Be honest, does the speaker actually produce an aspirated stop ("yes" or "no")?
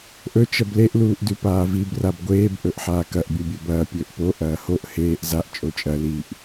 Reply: no